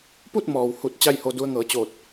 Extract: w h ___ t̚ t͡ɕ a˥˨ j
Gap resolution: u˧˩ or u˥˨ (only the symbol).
u˧˩